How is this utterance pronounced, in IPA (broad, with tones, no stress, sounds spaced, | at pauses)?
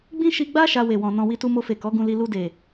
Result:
ɡ͡b ĩ˦ ʃ i˧ ɡ͡b a˦ ʃ a˧ w e˨ w ɔ̃˨ n ɔ̃˨ w i˧ t u˧ m o˧ f e˨ k ɔ˨˦ ɡ ũ˧ l i˧ l u˧ d e˨